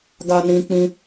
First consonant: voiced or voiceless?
voiced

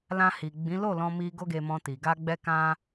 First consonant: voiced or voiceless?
voiced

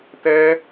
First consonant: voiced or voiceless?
voiceless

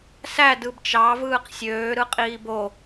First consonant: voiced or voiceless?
voiceless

